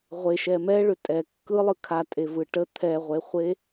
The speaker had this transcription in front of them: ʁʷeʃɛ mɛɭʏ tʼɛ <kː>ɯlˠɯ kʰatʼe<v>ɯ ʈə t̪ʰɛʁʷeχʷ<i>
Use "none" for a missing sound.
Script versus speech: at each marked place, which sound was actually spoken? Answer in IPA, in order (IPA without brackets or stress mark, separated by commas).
kː, v, e